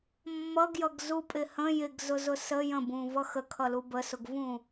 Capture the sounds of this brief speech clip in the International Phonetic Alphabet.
mː ʌ ɡ j ʌ ɡ z u pʼ ɪ h ə̃ j ɪ ɡ z ʊ z ʊ s ə j ə̃ b ũ v ʌ x ə kʰ ʌ l u b ə s ʊ ɡ v ũ

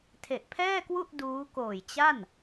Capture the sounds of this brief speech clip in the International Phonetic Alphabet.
tʰ e˨˩ ʔ pʰ ɛː˥˩ k w u˥˩ ʔ d uː˦˥ k oː˨˩ j t͡ɕ a˥˩ n

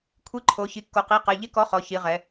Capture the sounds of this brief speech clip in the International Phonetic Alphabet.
kʷʰ i˨˥ ǃʰ o˩˧ ç i˩˧ kː o˩˧ q i˩˧˩ q ɛ˩˧˩ ʎ ɪ˦˥ k ɔ˨˥ χ ɔ˩˧ ç i˩˧ ʁ ɛ˩˧

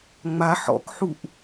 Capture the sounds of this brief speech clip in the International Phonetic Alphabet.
ŋ͡m a ħ ɔ̰ k ħ u ʔ

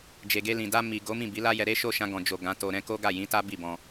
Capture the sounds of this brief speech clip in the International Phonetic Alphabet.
d͡ʒ e˨ ɡ e˧ l ĩ˨ d a˧ m i˨ ɡ o˨˦ m ĩ˦˨ b i˨˦ l a˦ j ɛ˧ ɾ e˦ ʃ o˦˨ ʃ ã˧ ɡ ɔ̃˨ d͡ʒ o˨ ɡ ã˨˦ t o˧ ɾ ɛ̃˦ k o˦ ɡ a˦˨ j ĩ˨˦ t a˦ b i˦˨ b ɔ̃˧

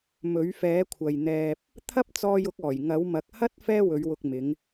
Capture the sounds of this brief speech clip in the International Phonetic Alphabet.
m ɵ˨˥ ɥ f ɛː˨˥ kʷʰ ɐ˨ j n̪ ɛː˧ p̚ | t̪ʰ ɐ˥ p̚ t͡s ɔː˧ j ʊ˨˥ k̚ ɔː˨˩ j ŋ ɐ˨˥ w m ɐ˨˥ k̚ h ɐ˥ t̚ f ɛː˥ w ɵ˨˧ ɥ w ʊ˧ k̚ m ɪ˨˧ ŋ

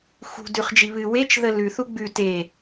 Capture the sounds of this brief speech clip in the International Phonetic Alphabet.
x ṳ d ʉ χ d͡ʒ i β ɨ w e t͡ʃ ð ə l ʉ θ u ɡ͡b ʉ t e

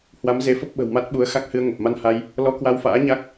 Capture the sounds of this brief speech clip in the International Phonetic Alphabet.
h w a˨˦ m z e˨˦ f ə˦˥ p̚ ɓ ə̤˨˩ w m a˦˥ t̚ ɓ u˨˦ ə̯ x a˦˥ k̚ h ɨ˧ ə̯ ŋ ə˨˩ p̚ m a˧ n h a˧ j | l ɔ˧ k w a˧ w f a̰ː˧˥ ɲ a˦˥ k̚

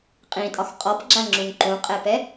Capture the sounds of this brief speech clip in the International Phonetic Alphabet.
qʼ ĩ tʼ ɒ x qʼ ɔ p ɡ͡ǁ a ŋ͡ǁ ũ ŋ ǃ ũ qʼ ɛ p ɛ

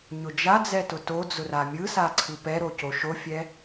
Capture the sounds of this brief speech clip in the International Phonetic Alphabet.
ɲ ʊ d͡ʒ a d͡z ɛ t ʊ t o d͡z ʊ r a mʲ ɯ s a ǀʰ ɯ p ɛ ɾ o c o ʃ o fʲ ɛ

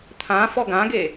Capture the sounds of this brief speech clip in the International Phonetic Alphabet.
t̪ʰ ã f ɔ ɡ ã ɡ e

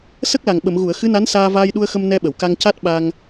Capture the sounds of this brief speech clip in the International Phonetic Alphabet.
s ə˦˥ k̚ l a˨˩ ŋ ɓ ə˨˩˨ m ɣ u˨˩˨ ə̯ x ɨ˧˥ n a˧˥ n s aː˧ v aː˧ j ɗ u˧ ə̯ x ə˧ m n ɛ˧ ɓ ə˨˩˨ w k a˧ ŋ c a˦˥ t̚ ɓ a˧ ŋ

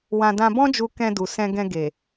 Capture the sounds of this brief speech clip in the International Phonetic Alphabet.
w ã˧ d ã˧ b ɔ̃˦ d͡ʒ u˧ k ɛ̃˧ d u˨ s ɛ̃˧ ɡ ɛ̃˧ ɡ e˨

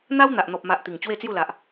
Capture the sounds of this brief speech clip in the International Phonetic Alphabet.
n̪ a˦ w n̪ a˨ ʔ n̪ ɔ˨ p̚ m a˨ ʔ t̪ i˨˩ ŋ t͡ɕ w e˥˧ t͡s j u˥˧ l a˨ ʔ

